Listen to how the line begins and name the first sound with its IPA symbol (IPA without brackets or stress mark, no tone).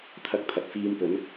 t̪ʰ